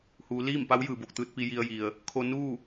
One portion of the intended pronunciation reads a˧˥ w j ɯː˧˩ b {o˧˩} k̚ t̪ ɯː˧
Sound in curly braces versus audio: correct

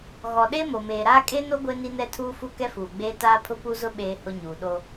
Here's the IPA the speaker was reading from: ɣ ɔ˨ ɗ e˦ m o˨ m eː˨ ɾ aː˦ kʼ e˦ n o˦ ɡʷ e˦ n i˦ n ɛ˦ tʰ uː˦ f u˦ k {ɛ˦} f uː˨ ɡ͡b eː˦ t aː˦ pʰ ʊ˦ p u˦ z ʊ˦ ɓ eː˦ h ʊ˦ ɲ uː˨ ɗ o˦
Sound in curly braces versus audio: correct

